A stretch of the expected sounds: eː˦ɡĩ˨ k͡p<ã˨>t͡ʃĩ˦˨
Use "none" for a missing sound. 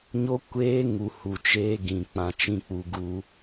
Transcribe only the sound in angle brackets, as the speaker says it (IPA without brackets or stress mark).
ã˨